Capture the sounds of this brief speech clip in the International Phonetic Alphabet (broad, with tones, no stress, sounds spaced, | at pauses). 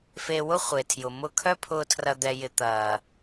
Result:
f e˧ w ʊ˦ χʷ e˨ tʰ j ʊ˨ m ʊ˧ kʰ œ˦ pʰ ʊː˧ tʰ r ɐ˧ d̪ ɛ˧ j ɪ˧ t̪ ɐː˨